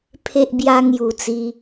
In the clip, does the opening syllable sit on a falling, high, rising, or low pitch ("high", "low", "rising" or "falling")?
low